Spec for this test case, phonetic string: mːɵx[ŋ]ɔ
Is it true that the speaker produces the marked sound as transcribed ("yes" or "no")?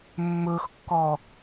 no